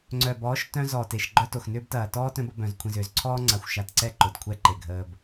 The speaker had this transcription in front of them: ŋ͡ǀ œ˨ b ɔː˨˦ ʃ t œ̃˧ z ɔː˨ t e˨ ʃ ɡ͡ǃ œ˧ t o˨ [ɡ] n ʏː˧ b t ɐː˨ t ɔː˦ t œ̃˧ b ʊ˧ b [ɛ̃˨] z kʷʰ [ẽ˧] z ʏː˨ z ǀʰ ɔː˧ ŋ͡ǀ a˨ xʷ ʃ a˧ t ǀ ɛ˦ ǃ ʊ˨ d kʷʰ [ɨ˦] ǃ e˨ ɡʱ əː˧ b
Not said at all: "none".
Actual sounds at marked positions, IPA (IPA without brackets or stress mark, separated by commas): x, œ̃˨, ẽ˨, ɛ˦